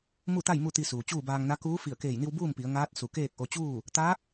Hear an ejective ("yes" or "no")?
no